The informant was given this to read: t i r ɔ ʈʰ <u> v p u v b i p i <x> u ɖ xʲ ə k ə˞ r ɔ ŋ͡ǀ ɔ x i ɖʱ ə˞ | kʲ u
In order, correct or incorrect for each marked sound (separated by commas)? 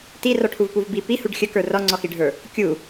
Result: correct, incorrect